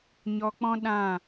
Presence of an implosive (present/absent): present